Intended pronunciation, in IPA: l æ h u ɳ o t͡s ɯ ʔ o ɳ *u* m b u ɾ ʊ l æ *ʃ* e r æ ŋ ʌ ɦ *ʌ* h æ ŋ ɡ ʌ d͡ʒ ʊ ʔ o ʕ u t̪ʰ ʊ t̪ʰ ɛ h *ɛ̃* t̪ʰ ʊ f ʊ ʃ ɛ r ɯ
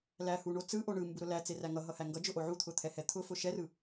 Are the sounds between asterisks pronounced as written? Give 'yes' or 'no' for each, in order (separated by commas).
no, no, yes, no